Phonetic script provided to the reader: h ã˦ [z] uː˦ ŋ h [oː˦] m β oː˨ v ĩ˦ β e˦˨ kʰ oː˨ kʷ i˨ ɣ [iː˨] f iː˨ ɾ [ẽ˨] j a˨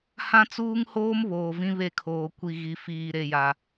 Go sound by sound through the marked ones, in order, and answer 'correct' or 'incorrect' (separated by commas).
incorrect, correct, incorrect, incorrect